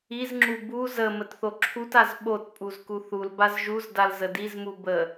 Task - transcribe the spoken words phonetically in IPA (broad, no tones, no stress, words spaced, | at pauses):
izŋ͡ǁu bu zə mətθoǁʰutaz ɓotpʼuz kuθulbaz ʒuzdal zədizmu bə